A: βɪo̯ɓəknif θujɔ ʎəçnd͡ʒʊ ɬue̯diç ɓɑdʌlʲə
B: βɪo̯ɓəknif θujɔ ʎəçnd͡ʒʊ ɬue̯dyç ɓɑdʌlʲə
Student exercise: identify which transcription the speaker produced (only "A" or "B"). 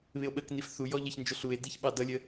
A